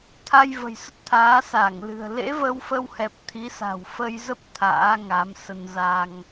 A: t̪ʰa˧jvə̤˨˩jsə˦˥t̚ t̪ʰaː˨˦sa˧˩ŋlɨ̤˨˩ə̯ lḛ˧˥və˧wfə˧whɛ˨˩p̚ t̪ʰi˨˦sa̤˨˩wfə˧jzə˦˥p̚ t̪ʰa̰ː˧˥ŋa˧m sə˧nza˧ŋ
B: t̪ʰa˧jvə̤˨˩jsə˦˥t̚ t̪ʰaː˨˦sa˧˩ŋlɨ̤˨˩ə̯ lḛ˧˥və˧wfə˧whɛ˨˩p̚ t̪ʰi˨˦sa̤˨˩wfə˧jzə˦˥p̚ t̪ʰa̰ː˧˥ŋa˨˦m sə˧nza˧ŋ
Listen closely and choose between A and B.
B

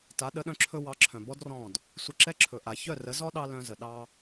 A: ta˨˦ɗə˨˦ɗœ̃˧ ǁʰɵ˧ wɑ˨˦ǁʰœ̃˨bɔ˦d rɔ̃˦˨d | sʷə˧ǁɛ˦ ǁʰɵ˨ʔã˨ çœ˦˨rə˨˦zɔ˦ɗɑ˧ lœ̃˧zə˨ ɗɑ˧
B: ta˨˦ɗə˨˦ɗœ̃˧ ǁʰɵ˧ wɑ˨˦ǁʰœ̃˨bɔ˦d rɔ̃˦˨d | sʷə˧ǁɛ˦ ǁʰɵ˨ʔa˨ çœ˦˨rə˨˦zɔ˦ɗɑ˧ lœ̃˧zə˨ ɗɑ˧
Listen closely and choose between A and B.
B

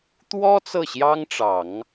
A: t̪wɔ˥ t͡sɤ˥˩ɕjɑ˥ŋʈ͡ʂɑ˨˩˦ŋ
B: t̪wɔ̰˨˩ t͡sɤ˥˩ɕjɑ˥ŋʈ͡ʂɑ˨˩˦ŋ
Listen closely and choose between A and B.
A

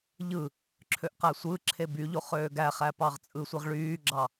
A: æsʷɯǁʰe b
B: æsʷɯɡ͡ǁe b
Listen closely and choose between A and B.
A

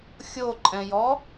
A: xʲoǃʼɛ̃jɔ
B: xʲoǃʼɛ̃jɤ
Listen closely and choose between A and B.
A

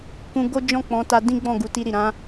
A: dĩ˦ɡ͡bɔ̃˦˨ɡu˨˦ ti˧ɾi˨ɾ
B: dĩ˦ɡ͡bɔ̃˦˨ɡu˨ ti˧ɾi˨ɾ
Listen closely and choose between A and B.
A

